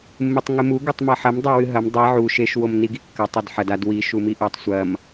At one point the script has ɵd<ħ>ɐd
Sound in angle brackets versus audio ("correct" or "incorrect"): correct